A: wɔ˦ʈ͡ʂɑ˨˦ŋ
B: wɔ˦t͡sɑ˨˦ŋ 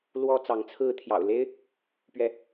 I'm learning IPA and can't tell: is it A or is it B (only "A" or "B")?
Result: B